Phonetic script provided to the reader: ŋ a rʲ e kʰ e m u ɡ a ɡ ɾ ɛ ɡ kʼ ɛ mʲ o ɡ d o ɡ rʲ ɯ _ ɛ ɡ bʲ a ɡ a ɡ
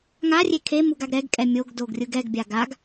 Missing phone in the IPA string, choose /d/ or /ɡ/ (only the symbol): ɡ